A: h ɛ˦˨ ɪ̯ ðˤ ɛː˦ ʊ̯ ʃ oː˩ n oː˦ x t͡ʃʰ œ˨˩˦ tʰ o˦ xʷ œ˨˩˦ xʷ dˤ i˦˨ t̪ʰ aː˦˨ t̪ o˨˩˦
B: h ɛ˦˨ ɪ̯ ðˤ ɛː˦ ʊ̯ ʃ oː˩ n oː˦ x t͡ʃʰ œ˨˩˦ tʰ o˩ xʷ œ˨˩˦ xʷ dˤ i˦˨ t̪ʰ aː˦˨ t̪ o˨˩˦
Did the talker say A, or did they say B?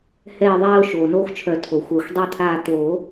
B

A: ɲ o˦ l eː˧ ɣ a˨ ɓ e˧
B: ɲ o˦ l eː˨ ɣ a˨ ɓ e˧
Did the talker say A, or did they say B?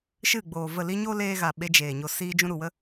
A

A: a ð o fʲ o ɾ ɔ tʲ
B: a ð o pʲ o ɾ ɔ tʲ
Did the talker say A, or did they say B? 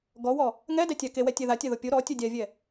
B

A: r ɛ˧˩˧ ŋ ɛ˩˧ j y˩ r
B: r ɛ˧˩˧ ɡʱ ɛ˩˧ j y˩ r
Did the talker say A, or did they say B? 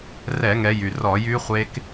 A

